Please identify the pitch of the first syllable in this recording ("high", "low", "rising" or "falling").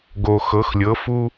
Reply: low